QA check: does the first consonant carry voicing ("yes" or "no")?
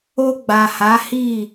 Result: yes